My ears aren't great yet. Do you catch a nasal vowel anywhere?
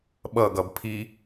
no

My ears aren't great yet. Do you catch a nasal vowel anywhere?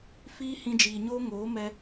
yes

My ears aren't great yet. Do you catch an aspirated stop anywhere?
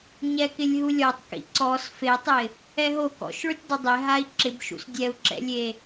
no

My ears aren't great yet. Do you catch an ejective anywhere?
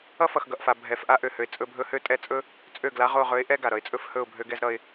yes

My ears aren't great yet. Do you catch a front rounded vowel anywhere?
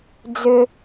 yes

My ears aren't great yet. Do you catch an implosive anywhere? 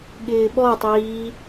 yes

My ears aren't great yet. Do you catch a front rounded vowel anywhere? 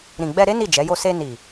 no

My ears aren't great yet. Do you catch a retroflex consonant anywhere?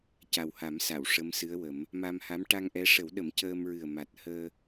yes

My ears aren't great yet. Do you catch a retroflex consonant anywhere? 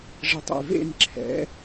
yes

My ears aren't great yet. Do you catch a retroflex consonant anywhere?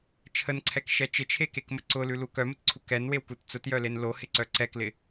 no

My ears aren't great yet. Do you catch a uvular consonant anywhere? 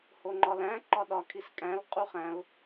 yes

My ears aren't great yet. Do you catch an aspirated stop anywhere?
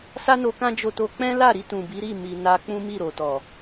no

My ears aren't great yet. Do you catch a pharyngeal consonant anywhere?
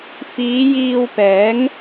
no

